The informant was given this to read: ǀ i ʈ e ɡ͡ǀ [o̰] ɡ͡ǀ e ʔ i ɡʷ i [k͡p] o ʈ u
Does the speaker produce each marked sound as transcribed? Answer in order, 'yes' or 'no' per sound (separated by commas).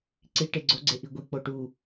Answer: no, yes